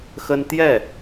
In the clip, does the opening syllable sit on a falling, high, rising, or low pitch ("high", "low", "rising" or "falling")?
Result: high